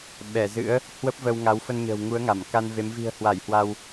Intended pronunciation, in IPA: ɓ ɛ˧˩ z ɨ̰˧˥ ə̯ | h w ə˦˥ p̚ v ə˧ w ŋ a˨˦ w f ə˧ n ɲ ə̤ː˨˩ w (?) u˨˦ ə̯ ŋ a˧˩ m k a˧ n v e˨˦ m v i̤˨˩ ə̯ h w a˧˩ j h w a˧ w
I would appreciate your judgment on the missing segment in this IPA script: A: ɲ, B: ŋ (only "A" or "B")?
B